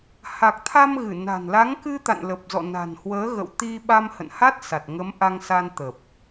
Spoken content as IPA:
h a˨˩ k̚ t̪ʰ a˧ m ɣ ɨ˧˩ n a̤˨˩ n l a˨˦ ŋ k ɨ˧ t̪ a̰˧˨ n l ə˨˩ p̚ z ɔ̰˧˨ n a̤˨˩ n h w əː˨˦ ɣ ə̰˧˨ w t̪ i˧ ɓ a˧ m h ə̰˧˨ n h a˦˥ t̚ s a˨˩ t̚ ŋ ə˨˦ m ʔ a˧ ŋ s a˧ n t̪ ə˨˩ p̚

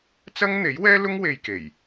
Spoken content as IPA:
t͡s ɐ˥ ŋ n̪ e˨˥ j w ɛː˥ l ʊ˥ ŋ w e˧ j k e˨˩ j

